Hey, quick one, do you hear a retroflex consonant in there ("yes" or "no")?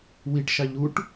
yes